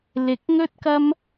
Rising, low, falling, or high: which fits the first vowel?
rising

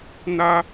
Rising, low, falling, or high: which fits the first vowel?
high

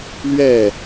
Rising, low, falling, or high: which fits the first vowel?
falling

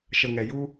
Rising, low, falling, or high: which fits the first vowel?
low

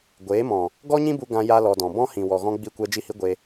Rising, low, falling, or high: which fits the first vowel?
rising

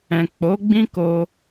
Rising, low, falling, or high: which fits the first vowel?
low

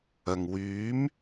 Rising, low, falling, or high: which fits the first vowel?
low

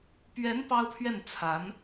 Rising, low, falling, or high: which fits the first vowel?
rising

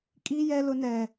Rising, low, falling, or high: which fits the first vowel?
high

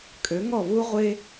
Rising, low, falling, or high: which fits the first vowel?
rising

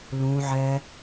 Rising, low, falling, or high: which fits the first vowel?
low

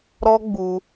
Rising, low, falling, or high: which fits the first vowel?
high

